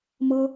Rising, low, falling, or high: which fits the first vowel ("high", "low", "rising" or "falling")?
high